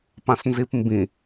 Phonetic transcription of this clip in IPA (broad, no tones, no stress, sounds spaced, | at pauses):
p ã s n z i p m b ĩ